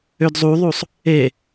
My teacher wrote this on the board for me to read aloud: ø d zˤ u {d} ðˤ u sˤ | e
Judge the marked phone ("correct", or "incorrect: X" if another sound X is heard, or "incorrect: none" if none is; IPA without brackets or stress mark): incorrect: none